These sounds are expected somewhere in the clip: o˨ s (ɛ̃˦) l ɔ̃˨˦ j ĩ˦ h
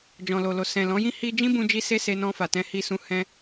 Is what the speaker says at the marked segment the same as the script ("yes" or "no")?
no